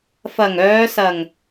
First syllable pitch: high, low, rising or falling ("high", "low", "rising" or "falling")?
low